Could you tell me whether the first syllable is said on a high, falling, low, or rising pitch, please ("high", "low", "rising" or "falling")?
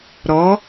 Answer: rising